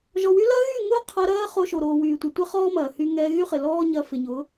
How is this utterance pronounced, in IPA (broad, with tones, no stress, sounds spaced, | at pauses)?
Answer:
ʒ ɔ˨ w y˦ l ɐ˦ ɣ y˦˨ ŋ ʊː˦ qʰ ɐ˧ ɾ ɐː˦ χ o˧ ʃ o˨ ɾ oː˨ w yː˨ tʷ ɐ˨ tʷ ɛ˦ χ ɔː˦ m ɐː˨ h y˧ ŋ ɛː˧ ɣ y˦ χ ɪ˨ l ɔː˦ ɲ ɐ˧ f ɪ˨ ɲ ʊː˨˦